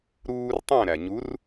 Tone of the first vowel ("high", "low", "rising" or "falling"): high